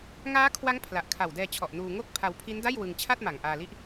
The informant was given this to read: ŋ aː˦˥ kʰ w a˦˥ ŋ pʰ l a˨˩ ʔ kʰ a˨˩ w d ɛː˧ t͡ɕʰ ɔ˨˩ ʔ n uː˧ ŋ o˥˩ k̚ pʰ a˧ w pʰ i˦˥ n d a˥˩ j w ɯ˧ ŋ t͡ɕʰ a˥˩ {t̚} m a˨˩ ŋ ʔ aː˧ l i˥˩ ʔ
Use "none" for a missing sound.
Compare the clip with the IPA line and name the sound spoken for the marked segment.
t̚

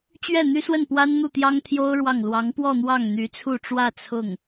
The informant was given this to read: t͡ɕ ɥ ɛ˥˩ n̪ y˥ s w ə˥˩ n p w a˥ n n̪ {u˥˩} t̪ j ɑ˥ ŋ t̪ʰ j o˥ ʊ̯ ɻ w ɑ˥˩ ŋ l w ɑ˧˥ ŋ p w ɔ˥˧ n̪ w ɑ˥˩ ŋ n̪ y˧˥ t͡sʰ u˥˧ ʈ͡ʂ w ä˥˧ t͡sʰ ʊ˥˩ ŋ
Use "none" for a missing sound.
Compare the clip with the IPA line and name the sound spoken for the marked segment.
u˥˩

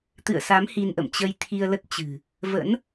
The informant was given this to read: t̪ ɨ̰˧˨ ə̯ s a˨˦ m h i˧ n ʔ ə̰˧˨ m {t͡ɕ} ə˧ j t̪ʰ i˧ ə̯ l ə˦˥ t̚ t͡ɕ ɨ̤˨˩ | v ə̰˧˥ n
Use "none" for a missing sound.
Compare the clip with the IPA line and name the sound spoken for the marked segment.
t͡ɕ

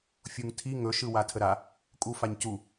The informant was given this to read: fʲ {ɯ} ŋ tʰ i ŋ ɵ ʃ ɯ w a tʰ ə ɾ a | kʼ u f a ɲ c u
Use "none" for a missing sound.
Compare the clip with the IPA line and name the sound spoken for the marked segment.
u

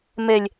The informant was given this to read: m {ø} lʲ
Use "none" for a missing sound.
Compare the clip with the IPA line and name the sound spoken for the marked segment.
e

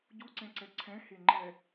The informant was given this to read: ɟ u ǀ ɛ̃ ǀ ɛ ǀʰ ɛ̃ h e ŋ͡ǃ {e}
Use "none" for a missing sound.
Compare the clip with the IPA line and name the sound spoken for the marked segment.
ɛ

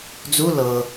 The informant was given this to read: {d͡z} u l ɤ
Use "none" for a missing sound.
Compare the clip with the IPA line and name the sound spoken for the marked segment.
d͡z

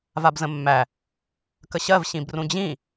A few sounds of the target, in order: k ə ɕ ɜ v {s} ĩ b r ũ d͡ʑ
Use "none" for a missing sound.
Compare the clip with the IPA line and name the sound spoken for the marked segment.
ɕ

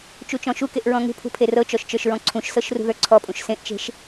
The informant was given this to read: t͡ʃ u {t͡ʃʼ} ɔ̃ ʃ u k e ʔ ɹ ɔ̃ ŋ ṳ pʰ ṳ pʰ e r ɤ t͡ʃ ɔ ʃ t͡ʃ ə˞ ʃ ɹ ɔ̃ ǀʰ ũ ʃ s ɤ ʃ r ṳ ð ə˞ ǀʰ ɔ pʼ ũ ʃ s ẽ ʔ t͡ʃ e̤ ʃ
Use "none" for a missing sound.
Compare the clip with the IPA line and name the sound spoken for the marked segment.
t͡ʃ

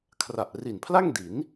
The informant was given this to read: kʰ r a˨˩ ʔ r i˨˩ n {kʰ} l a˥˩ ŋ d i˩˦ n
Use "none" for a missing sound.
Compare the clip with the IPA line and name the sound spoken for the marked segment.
pʰ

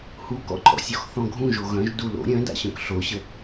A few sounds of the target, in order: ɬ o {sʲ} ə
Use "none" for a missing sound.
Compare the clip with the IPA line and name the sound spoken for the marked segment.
ɕ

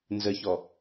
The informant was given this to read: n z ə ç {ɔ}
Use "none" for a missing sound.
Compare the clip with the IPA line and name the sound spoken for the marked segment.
ɔ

